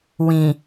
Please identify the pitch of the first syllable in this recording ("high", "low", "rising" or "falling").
low